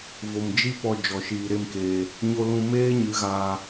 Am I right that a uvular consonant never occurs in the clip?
yes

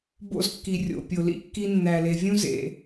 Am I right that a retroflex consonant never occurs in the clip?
yes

